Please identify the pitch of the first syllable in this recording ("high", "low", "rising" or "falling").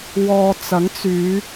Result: low